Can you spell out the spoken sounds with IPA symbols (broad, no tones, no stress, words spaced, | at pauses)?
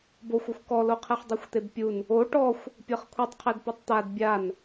boxʷuxʷ kɔloqʰɛχ dˤɯxʷt̪ebpʲun | o ʈɔxʷ | pʲɤχkʷʰitˤqʰɛd pɛtˤt̪ad bʲan